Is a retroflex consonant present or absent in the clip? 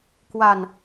absent